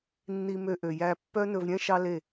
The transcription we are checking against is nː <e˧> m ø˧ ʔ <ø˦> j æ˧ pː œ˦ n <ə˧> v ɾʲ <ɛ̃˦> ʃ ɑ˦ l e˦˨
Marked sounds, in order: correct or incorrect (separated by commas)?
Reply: incorrect, incorrect, incorrect, correct